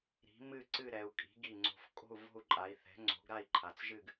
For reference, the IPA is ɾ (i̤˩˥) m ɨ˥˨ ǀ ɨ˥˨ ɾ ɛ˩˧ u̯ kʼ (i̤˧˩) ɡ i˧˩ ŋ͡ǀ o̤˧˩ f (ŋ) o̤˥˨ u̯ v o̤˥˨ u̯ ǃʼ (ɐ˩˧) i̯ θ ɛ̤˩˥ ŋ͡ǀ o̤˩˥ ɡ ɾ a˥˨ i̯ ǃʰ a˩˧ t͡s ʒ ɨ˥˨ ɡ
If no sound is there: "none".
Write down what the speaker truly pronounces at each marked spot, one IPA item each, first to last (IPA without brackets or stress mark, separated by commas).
i̤˩˥, i̤˩˥, kʼ, a˩˧